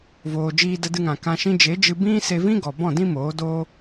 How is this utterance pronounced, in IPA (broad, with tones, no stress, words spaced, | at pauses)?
voː˨d͡ʒiː˧ də˧dɨ˧ŋã˨ kã˧ʃĩ˦ d͡ʒe˨˦d͡ʒɨ˧ bĩ˦ se˧vĩ˦ɡɔ˨ bɔ̃˦˨dĩ˦moː˨˦doː˦